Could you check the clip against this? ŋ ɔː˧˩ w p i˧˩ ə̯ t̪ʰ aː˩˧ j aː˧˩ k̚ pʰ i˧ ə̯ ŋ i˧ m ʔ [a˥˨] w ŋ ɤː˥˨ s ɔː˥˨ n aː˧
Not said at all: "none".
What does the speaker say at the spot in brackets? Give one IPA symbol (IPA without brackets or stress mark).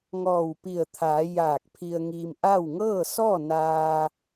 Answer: a˥˨